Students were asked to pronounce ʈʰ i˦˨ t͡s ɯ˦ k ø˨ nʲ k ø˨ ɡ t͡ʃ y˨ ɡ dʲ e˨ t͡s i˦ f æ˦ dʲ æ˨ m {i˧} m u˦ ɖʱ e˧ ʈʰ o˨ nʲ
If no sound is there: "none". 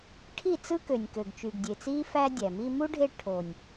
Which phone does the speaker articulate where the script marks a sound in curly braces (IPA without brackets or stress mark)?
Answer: i˧